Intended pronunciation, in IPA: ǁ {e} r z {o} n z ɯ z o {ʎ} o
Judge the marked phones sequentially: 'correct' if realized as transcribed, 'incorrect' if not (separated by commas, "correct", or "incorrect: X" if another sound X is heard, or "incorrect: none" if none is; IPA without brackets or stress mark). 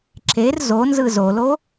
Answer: correct, correct, incorrect: l